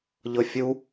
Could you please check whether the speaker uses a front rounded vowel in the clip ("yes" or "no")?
no